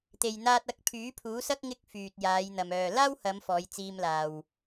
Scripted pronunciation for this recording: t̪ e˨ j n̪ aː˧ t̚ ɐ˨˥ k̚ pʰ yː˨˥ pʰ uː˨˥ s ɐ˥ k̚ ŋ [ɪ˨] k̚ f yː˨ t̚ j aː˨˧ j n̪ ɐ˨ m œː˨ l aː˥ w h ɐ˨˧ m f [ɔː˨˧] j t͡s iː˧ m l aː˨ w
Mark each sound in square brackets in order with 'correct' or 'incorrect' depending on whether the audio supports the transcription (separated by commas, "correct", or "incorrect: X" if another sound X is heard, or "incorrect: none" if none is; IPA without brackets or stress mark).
incorrect: ɪ˥, correct